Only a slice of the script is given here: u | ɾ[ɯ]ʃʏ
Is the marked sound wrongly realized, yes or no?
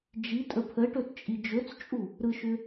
no